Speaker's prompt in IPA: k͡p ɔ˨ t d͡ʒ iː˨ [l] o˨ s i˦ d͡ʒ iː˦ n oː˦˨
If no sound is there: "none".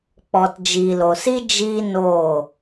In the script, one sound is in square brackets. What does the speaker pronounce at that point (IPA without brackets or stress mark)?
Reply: l